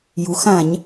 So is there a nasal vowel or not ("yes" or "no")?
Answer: yes